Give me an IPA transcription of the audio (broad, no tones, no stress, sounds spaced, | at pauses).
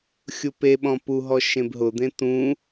xʲ u p e ɓ ɔ̃ p u ɦ ɔ ʃ ẽ b ɦ ʊ d̪ ẽ t ũ